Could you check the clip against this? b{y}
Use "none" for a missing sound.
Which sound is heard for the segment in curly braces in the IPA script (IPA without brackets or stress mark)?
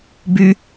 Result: y